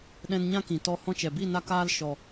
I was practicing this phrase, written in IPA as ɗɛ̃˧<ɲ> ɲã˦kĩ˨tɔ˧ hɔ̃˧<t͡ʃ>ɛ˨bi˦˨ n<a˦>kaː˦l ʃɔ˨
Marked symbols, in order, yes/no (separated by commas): no, yes, yes